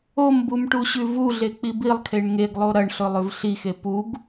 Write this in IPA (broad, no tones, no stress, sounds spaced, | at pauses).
o m b u m ʈ u ɕ ʉ v u ɮ e k͡p i b i lˠ kʰ e ɳ ŋ e ɡ lˠ o ɾ ɐ ɳ ɬ ɵ lˠ ʉ v ɬ i x e p u ɡ